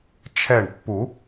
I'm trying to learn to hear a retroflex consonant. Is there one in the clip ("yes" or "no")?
yes